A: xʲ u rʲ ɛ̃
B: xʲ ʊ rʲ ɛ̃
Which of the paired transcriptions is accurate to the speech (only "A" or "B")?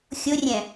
B